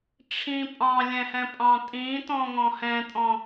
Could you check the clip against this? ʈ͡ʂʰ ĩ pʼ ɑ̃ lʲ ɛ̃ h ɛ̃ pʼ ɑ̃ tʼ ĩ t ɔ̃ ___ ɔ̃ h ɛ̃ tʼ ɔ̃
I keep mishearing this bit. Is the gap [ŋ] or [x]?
ŋ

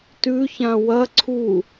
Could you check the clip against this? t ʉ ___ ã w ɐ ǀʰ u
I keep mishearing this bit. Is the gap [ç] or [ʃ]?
ç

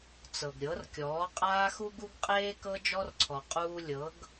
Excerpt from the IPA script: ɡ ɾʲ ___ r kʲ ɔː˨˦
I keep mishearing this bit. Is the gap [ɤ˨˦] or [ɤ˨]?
ɤ˨˦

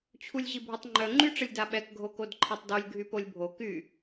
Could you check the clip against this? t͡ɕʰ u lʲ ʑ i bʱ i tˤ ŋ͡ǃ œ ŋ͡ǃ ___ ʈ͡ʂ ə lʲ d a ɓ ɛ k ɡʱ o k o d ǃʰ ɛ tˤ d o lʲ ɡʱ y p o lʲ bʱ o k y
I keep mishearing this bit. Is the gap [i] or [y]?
y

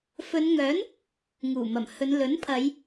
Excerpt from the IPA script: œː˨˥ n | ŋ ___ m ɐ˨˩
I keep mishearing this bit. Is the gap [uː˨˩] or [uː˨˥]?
uː˨˩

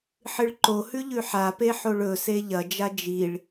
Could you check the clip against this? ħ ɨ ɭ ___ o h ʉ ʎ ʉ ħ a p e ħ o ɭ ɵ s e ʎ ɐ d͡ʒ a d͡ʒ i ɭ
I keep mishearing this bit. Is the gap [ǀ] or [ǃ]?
ǃ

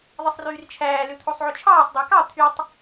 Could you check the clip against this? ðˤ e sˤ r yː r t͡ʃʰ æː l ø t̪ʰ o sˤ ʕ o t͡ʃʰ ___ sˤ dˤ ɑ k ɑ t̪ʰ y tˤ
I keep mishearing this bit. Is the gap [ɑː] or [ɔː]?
ɑː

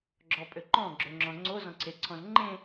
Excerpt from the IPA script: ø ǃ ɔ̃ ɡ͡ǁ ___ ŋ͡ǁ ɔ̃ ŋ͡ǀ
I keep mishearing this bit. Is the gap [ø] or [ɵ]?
ɵ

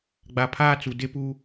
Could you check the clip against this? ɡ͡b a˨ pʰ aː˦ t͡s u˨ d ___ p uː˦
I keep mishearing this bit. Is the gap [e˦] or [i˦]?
e˦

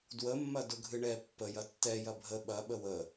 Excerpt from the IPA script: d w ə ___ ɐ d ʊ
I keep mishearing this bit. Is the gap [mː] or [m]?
mː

